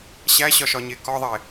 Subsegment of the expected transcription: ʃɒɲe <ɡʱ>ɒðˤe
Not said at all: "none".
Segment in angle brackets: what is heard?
k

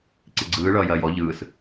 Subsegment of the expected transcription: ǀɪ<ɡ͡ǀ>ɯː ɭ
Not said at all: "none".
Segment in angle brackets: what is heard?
ɡ͡ǀ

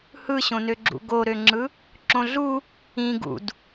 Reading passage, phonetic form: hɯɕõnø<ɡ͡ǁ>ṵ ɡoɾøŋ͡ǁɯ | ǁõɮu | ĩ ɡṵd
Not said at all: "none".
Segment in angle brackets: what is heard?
ɡ͡ǁ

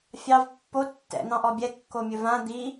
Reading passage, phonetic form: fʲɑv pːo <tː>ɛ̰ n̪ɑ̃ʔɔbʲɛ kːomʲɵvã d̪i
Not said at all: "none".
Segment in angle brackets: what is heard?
tː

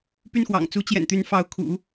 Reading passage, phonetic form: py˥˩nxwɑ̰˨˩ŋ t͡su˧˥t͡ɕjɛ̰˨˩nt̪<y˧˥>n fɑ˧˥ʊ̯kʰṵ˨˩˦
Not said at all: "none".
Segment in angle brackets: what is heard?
y˧˥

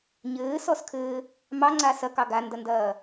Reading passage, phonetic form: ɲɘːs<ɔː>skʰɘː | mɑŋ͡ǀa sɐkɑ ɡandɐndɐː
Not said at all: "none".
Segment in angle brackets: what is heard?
ɔ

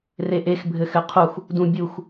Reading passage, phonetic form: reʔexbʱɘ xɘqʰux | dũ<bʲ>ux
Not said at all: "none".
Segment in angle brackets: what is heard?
bʲ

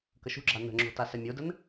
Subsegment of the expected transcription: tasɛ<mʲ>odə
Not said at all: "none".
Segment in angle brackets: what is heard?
mʲ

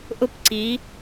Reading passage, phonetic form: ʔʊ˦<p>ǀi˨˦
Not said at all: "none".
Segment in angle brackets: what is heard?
p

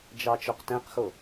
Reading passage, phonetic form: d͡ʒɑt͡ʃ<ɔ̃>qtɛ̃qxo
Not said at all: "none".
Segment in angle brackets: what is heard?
ɔ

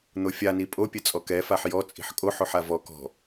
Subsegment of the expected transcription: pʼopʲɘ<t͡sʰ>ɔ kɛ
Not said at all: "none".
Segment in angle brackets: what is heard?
t͡sʼ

